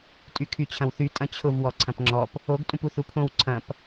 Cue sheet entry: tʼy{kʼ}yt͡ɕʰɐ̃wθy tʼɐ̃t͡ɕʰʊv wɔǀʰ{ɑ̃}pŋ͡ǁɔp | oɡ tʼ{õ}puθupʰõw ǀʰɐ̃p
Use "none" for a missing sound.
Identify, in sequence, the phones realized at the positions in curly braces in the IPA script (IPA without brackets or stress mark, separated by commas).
kʰ, ɐ̃, ũ